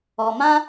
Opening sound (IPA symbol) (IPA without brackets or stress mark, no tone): ɔ